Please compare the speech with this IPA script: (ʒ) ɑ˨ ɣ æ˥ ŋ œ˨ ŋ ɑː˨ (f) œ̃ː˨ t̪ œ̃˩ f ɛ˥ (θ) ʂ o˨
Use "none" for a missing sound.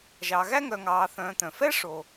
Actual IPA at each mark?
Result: ʒ, θ, none

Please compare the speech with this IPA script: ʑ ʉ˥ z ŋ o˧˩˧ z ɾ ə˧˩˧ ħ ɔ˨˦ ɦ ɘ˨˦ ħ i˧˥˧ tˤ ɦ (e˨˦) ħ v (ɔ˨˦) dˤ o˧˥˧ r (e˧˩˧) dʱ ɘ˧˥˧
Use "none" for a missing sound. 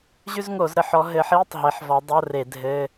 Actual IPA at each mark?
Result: e˨˦, ɔ˨˦, e˧˩˧

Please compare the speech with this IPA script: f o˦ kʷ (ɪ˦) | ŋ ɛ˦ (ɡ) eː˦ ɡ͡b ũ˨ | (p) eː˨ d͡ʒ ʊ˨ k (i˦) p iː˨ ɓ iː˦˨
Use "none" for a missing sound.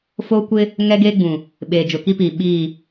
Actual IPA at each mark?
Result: ɪ˦, ɡ, ɓ, i˦

